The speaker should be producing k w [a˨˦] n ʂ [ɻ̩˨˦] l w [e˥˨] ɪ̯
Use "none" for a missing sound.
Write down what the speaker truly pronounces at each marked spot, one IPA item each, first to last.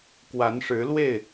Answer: a˨˦, ɻ̩˨˦, e˥˨

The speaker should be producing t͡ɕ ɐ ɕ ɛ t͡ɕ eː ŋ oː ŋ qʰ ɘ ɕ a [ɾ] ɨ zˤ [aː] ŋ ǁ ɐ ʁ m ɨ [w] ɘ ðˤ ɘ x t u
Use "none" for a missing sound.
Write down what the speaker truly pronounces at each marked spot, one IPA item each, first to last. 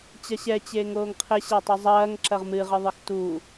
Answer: tˤ, ɐː, ʁ

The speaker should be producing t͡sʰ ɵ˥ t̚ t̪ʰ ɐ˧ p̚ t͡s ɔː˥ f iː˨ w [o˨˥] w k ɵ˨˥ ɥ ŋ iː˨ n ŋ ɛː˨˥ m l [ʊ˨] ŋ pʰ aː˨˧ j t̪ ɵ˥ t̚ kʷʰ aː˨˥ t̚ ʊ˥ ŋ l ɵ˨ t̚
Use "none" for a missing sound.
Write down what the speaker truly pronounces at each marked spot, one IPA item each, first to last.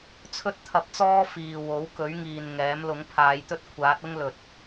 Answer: o˨˥, ʊ˨˥

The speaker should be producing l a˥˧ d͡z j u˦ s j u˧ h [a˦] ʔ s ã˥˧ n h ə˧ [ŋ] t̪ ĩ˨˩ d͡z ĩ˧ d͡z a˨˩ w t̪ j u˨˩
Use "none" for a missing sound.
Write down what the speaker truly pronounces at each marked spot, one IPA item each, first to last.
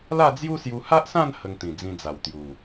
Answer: a˦, ŋ

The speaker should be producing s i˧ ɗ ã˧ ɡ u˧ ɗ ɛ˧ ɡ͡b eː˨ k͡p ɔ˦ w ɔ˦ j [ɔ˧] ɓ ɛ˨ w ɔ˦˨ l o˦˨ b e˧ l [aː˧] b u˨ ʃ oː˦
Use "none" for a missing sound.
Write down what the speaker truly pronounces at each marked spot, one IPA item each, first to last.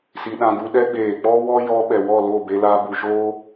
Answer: ɔ˧, aː˧

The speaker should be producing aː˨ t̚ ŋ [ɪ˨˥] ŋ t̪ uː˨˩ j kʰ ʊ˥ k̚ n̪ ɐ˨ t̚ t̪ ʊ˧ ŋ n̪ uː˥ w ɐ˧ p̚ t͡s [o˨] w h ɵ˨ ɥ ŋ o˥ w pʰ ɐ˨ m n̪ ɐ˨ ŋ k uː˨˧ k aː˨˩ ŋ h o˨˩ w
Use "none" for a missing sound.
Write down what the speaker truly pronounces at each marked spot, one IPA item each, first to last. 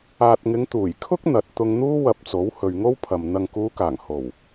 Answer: ɪ˨˧, o˨˥

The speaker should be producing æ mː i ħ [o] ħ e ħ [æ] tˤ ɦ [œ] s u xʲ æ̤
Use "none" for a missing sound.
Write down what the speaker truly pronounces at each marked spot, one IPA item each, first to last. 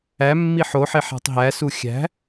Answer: o, æ̤, æ

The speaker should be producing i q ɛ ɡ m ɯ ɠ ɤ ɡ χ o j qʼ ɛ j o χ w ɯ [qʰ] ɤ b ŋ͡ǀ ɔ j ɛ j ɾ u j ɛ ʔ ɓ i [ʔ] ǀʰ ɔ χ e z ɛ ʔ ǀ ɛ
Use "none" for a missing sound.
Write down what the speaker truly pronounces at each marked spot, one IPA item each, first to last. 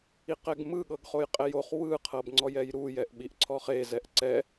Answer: qʰ, ʔ

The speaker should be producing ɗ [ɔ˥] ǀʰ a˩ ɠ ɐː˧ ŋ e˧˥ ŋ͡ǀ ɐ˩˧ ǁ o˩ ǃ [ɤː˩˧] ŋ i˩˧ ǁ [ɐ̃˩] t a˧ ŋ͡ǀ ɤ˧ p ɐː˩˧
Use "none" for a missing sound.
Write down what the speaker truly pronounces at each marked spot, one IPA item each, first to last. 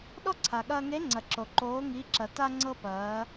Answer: ɔ˥, oː˩˧, ɐ˩

